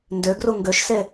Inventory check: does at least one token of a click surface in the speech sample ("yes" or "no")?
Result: no